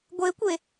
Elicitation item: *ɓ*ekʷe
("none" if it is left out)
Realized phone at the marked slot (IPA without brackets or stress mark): ɡʷ